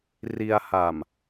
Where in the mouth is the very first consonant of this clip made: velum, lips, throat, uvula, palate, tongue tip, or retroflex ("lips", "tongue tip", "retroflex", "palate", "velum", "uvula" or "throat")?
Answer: tongue tip